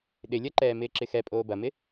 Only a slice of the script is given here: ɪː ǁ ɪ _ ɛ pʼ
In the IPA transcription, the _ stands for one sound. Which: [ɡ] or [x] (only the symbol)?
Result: x